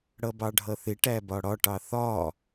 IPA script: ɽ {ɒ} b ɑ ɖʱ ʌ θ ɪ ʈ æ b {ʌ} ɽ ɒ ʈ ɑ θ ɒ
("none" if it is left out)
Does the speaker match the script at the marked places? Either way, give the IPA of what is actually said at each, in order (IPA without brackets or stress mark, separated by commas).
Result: ʌ, ɒ